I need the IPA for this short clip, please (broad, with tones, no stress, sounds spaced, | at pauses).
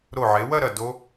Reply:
ɾ o˧˩ ʕ e˩˧ w ɐ˥˧ ɾ ɐ˧˩ d o˧